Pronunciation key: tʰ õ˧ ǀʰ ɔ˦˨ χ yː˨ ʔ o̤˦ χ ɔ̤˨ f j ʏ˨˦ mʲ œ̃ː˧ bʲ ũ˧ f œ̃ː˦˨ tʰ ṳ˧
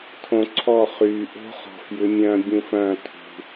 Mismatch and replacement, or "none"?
none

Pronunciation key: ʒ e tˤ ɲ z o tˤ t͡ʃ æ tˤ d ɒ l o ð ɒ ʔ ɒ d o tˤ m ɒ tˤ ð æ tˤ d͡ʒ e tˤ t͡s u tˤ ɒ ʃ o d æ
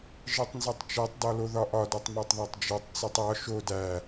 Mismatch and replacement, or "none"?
ɲ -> n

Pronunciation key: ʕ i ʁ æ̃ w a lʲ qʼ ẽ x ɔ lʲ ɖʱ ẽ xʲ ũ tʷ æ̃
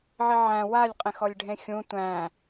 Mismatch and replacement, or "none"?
ʁ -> ʕ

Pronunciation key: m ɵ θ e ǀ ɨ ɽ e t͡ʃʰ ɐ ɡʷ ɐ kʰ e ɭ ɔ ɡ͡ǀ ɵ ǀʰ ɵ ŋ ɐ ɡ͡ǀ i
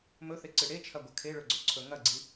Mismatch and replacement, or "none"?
ɔ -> ɵ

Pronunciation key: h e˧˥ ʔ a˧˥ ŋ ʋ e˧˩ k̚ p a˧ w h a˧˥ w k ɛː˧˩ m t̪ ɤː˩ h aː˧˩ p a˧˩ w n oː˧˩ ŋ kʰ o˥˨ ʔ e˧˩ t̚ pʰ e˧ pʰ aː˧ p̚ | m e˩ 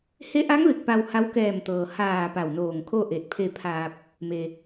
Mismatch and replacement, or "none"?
none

